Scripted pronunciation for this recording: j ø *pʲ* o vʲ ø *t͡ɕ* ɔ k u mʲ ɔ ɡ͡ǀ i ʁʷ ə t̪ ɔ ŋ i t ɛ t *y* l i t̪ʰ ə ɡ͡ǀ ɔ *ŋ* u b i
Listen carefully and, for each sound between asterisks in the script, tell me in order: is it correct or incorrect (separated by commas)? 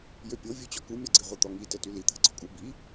correct, correct, correct, incorrect